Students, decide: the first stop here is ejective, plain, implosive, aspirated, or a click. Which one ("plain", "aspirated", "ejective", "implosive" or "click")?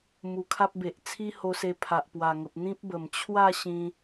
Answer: aspirated